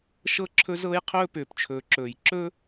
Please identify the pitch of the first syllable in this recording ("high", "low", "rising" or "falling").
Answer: high